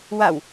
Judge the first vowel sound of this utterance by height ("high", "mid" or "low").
low